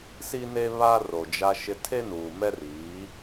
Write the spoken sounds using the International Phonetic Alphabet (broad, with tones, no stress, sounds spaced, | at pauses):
s i˦ n e˦ β a˦ r o˨ d͡ʒ a˦ ʃ ɪ˦ tʰ e˦ n uː˨ m ɛ˦ r iː˨˦